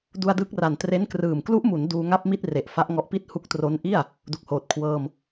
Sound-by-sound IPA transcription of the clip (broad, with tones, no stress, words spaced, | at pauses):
du˧a̯ dɯ˦˥k̚ra˨˩n tre˦˥nkrɯː˨˩m klu˦˥ʔmu˩˦n duː˧ ŋa˥˩p̚mi˥˩t̚ re˨˩ʔfa˦˥ʔŋɔ˦˥ʔpi˥˩t̚ hu˦˥k̚tro˦˥nʔi˥˩a̯ | du˨˩k̚hoː˨˩t̚ kʰwɤː˧m